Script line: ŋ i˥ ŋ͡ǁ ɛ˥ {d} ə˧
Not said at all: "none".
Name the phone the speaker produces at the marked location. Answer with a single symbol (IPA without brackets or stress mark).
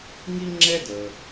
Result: d